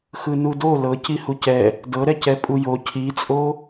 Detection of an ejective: present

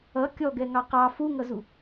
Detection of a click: absent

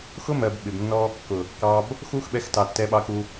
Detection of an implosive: present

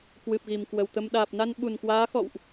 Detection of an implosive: present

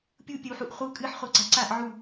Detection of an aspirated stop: absent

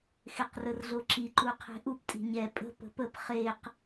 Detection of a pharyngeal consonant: absent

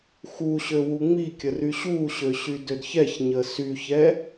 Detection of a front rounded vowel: present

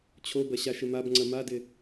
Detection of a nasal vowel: absent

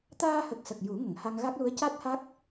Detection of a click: absent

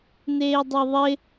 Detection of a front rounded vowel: absent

